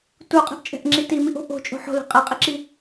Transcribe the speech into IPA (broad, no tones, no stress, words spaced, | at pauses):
tuqʼɛ̤ʔt͡ʃʼɛ̤ʔŋ͡ǁi timiʔo̤ ʔo̤t͡ʃʼo̤ ħo̤lɛ̤ qʼɛqʼiǁi